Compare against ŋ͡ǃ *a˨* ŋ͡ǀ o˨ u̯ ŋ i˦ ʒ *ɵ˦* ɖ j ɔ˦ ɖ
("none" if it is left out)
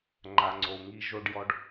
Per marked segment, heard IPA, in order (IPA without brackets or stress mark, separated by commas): a˨, o˦